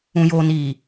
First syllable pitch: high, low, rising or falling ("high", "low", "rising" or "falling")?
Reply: low